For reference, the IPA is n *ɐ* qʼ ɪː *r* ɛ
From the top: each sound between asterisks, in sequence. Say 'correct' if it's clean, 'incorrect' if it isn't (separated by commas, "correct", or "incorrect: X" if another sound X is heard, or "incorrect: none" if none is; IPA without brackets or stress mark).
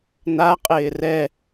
incorrect: a, correct